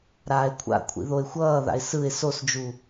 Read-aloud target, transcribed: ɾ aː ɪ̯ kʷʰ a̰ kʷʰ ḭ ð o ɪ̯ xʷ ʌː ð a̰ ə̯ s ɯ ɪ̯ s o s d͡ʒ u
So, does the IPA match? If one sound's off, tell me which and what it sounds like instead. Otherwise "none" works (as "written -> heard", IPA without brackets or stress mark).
ə̯ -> ɪ̯